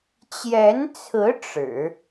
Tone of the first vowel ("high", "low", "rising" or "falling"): rising